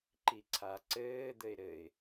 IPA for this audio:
ǃ i ǀʰ a ǀ ɘː d̪ ɘ ɪ̯ ɾ ɘ ɪ̯

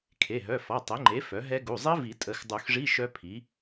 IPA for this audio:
kʰ e˩˧˩ ɦ œ˩˧˩ f ɔ˩˧˩ tˤ e˩˥ ŋ͡ǃ e˩˥ f œ˩˥ ɦ ɛ˦˥ ɡ u˩˧˩ zˤ i˦˥ v i˨˩˦ tʼ ə˨˩˦ x dˤ u˨˩˦ x ʐ i˧˥˧ ʃ œ˦˥ pʰ i˩˥

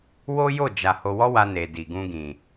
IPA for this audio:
w o˦ j o˦˨ d͡ʒ a˨ h o˧ w ɔ˦ w a˧ n e˨ d i˨ ɡ ũ˧ ɡ ĩ˨

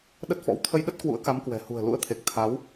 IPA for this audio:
ɗ ə˦˥ t̚ f ɔ̰˧˥ w t̪ʰ ə˧ j ɗ ə˦˥ t̚ k w ṵ˧˥ ə̯ k a˨˦ m k w ɛ̤˨˩ h ṳ˨˩ ə̯ l ṵ˧˥ ə̯ t̪ʰ e˨˩ k̚ t̪ʰ a˨˦ w

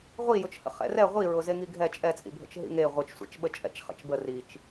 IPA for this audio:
ʁʷ i j ʊ t͡ʃ h ə̰ χ ɛ̰ r ɛ ʁʷ i ɹ ʊ z e ŋ i ɡʱ ɛ t͡ʃʼ ɛ t͡sʼ ḭ bʱ ə̰ t͡ʃ ɦ ḭ ŋ e ʁʷ ɨ t͡ʃ sʷ ḭ t͡ʃ ɓ ə t͡ʃʼ ɛ̰ t͡ʃ χ ə̰ t͡ʃ b ə r i t͡ʃ

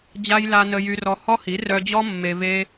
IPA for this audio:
d͡ʑ a˦ j l a˧ n ə˧ j y˧ r ɔ˧ h ɔ˦ h i˨˦ r œ˧ d͡ʑ ɔ˦ mː e˧ v e˦

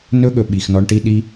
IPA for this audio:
n ɵ˦ ɠ ɵ˨ ɓ i˨ x n ɔ˧ ɳ ʈ i˦ ɗ i˦

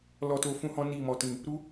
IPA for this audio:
l ɔ˧ t o˧ f ũ˦ h ɔ̃˦ n i˦˨ m ɔ˧ t ĩ˧ | ɾ u˦

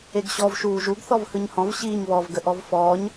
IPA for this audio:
e ɡ ɕ ɔ v ʃ uː ʒ u ɡ θ ɔ v h ɯ ɲ h ɔ̃ v ɕ iː ɲ β ɔ v ɡ ə ʔ ɔ v f ɔː ɲ

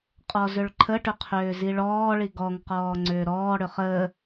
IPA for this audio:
qʼ ɔ z ʏ ɭ ǃʰ ə ʈ ʏ qʰ ʏː z i ɭ ɔː ɭ i ɡ ɔ ŋ q ɔː ŋ͡ǀ ʏː ɾ ɔː ɽ ʏ χ ə

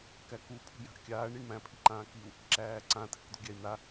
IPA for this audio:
k æ k u pʰ ṳ j a̤ ʔ kʲ aː ɳ ɾ i ɳ m æ̃ pʰ i ǃ ãː k i u̯ | ǁ æː ǀ ã tʰ ɪ k d̪ ṳ ɡʲ æ i̯ n̪ a

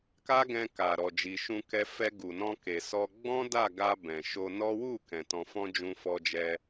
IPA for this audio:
k a˦ ɡ ɛ̃˧ k a˨ ɾ ɔ˨ d͡ʒ i˨ ʃ ũ˧ k ɛ˧ f ɛ˧ ɡ u˨ n ɔ̃˧ k e˨ s ɔ˧ ɡ͡b ɔ̃˦ d a˦˨ ɡ a˧ b ɛ̃˨ ʃ o˧ n ɔ˦ w u˦˨ k ɛ̃˨ t ɔ̃˧ f ɔ̃˦ d͡ʒ ũ˧ f ɔ˧ d͡ʒ ɛ˧

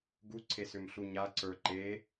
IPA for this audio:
ɡ u ǀʰ e s ʏ m ɬ u ɲ a ǀ ə˞ ǃ e

